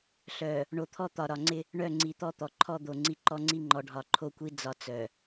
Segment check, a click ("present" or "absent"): present